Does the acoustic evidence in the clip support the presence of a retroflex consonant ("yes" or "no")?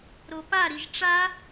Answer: yes